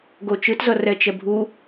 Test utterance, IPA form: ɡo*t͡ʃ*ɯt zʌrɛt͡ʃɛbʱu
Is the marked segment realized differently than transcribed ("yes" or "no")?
no